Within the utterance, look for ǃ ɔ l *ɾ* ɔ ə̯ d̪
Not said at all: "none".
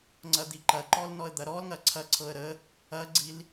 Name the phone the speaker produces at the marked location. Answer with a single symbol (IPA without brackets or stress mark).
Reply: n